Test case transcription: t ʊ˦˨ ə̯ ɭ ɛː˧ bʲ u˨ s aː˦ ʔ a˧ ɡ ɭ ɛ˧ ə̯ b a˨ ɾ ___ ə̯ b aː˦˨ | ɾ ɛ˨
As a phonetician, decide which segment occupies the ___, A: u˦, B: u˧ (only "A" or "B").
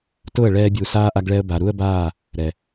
A